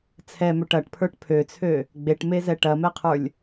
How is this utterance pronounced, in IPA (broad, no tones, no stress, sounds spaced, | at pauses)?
t͡sʰ ɛ m ø ʈ ɐ ʈ pʰ ə˞ ʈ pʰ ø t͡sʰ ø | ɡ͡b e ʈ m e z ɛ ʈ ɐ m ɛ qʰ ə˞ lʲ